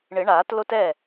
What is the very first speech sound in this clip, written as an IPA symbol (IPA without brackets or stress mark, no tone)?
ɳ